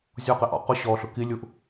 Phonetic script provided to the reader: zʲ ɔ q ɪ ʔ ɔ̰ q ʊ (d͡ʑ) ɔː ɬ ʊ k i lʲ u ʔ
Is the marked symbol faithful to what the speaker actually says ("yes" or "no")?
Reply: no